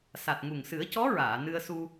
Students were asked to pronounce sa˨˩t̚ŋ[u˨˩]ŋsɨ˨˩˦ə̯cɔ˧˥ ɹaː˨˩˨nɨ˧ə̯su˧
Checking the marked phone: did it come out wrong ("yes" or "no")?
no